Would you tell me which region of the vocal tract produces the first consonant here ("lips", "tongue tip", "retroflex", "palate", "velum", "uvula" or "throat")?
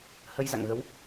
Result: throat